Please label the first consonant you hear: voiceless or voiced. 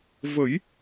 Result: voiced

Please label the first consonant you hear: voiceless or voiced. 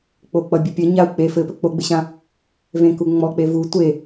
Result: voiceless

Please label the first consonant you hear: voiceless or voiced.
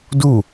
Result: voiced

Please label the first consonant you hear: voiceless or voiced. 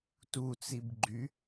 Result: voiceless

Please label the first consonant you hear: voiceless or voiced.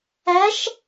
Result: voiceless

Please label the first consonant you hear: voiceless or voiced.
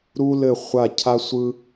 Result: voiced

